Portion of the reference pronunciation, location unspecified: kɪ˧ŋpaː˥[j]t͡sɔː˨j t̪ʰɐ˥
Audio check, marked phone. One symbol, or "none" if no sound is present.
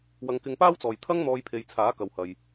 w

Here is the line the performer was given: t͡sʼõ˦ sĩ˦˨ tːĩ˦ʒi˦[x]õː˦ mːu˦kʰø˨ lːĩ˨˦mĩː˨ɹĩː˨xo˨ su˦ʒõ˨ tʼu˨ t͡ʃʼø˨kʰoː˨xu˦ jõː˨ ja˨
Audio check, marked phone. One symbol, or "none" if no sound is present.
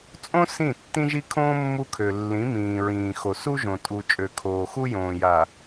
kʰ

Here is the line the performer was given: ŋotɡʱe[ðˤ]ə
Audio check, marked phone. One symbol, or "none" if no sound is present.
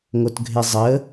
zˤ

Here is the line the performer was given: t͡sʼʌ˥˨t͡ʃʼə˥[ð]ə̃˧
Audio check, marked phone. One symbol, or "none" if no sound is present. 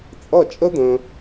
d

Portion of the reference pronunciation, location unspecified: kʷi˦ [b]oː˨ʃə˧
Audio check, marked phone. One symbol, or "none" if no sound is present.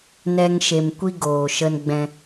ɡ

